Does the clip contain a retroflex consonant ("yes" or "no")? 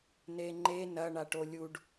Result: yes